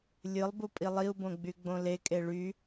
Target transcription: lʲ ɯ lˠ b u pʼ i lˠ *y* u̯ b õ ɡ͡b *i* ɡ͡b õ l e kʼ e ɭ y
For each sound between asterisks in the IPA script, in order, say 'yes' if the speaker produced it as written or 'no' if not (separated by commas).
no, no